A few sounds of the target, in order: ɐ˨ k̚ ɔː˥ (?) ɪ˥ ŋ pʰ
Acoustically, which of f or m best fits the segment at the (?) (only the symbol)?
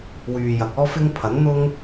f